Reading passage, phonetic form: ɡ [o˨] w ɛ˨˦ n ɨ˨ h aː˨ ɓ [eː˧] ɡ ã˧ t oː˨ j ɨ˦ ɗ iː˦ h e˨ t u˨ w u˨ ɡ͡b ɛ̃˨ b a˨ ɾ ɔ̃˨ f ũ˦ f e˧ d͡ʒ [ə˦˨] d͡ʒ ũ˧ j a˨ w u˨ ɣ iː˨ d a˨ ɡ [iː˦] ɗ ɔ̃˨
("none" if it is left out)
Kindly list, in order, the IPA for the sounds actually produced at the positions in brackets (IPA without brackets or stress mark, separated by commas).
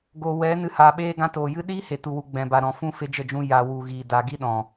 o˨, eː˧, ə˦˨, i˦